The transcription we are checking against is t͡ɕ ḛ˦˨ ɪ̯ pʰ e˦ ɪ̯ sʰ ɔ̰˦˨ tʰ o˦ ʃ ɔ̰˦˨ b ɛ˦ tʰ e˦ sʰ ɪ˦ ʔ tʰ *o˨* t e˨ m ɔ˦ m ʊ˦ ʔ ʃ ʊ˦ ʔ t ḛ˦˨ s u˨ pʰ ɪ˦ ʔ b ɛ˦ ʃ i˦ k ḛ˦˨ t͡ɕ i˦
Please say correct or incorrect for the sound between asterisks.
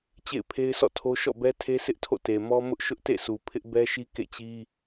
incorrect: o̰˦˨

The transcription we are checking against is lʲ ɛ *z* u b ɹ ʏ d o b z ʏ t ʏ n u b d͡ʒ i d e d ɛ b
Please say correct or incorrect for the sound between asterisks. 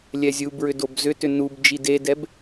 incorrect: zʲ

